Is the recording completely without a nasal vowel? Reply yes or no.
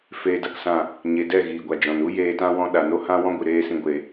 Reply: no